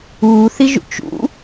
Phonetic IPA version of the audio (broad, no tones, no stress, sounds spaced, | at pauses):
uː θ i ʒ ṵ t͡ʃ ṵ